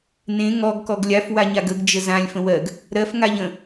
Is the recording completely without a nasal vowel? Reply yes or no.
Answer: no